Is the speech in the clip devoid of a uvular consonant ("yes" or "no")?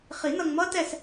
no